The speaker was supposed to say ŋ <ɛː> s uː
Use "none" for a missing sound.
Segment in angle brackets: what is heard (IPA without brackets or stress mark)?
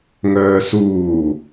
œː